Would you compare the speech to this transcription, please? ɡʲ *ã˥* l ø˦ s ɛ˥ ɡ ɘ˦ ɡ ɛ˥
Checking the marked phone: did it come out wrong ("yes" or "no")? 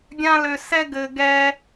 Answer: no